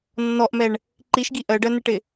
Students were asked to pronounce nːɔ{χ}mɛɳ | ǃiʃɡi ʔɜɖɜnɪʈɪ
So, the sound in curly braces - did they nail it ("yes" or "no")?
no